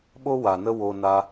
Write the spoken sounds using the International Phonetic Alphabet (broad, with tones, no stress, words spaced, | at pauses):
ɓo˦ wa˨nə˦ wo˧na˧